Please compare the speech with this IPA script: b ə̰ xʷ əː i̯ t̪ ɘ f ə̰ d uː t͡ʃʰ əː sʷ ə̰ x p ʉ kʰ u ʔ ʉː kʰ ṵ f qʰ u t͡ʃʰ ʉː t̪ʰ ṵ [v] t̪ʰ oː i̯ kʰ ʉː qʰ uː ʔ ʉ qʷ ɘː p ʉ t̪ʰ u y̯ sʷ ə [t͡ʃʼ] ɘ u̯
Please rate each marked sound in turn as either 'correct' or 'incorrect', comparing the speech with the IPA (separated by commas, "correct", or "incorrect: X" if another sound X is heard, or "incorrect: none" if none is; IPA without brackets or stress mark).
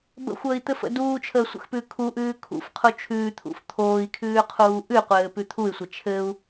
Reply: incorrect: f, incorrect: t͡ʃʰ